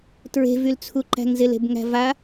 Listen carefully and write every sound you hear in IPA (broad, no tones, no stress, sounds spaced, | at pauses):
t ɹ e̤ v y l t͡sʰ u ǃ æ̤ ŋ z ɪ l e̤ b ŋ æ̤ v a